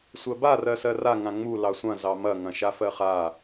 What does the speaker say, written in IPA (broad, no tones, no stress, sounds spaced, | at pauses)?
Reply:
sʷ ɜ b a r ɜ s ɜ r a ŋ ã ŋ͡m u l ɑ sʷ ɐ̃ z ɑ m ɐ ŋ ɐ̃ ʃ a f ɜ χ a